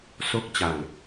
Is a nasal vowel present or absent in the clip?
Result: absent